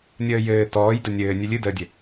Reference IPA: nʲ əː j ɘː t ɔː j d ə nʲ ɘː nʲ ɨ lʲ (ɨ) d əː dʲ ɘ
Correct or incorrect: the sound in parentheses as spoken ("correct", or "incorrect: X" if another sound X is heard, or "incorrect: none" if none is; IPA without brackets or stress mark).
correct